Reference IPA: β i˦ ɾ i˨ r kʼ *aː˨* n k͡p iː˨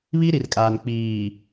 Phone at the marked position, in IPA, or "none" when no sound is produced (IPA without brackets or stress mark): aː˨